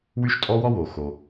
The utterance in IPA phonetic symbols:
wy˥ʃ tʼɔ˥wɔ˥wo˩ xo˩

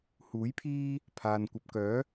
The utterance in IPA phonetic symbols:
huː˨˥jpʰiː˥ | pʰaː˨n kʷɐ˨p̚kœː˨˥

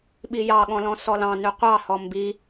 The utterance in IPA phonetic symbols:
ɓijɑɠɔ̃lɔ̃ sɔlɑ̃nʉ qʷɑhɔ mbi

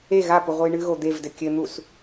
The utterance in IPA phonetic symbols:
e ɣapuʁʷɨj ɳɨɣo d̪evdɘ kʲɘn̪us

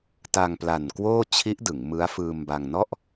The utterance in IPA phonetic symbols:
ta˧ŋpla˨˩n kwoː˥˩t͡ɕʰi˦˥ʔdɯ˩˦ŋ mɯ˦˥a̯ fɯː˧mba˧ŋnɔ˥˩ʔ

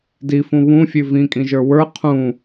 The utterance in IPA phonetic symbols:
difũ βũfʲʉ vĩkʼĩʒə˞ wə˞ qʰũ

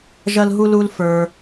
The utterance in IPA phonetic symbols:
ʒɐ˥lɦu˥lu˦l fə˞˩

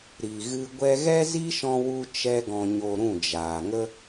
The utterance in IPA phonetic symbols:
ɾi˨ɣɨ˧ ɡʷɛ˧ɣɛ˦zi˦ʃɔ̃˧ wu˧t͡ʃɛ˧ɡɔ̃˨ɲo˨ ɾũ˦˨d͡ʒaː˨ŋə˦

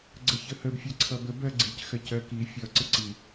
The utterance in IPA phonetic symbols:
ɡ͡ǀəçəhəb fʲɜǀʰʌbəb ɜɡ͡ǀic xɜcɜki fʲʌ ǀəǀi

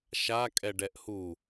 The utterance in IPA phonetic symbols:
ʃa kʼɛɖɛʔhu

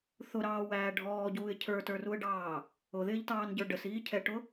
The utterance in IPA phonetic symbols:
θʊɾɑːwæː ɖʱɔːɟuːɪ̯ cʰə˞tə˞ruə̯ɖɑː | ʊðɪːʎtɑːnɟə˞ ɖəsiːcʰɛʈʊ

